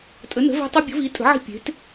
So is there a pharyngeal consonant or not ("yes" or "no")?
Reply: yes